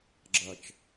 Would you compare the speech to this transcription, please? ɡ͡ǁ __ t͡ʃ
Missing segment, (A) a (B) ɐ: B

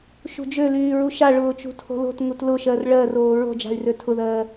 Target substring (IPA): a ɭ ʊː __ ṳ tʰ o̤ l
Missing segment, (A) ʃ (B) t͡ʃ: B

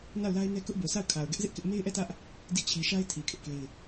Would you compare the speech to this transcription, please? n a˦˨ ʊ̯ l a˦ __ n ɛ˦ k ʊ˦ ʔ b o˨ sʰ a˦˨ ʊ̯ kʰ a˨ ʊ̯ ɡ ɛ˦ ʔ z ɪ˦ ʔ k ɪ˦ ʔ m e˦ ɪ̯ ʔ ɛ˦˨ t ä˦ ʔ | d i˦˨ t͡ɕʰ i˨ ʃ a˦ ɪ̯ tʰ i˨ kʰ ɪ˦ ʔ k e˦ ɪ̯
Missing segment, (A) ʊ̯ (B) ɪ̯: B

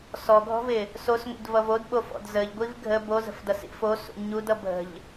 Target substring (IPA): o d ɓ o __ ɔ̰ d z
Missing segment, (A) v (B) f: B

